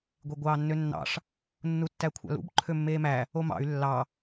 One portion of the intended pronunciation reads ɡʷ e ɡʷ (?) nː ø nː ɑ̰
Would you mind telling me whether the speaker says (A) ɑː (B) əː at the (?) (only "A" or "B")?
A